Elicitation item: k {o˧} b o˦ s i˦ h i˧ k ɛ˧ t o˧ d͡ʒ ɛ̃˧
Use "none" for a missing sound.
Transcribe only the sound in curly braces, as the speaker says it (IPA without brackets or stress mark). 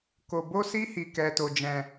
o˧